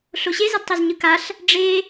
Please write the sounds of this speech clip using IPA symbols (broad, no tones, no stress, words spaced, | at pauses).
ɬoɕe zadtˤezɲɯkaɬ | ɖ͡ʐe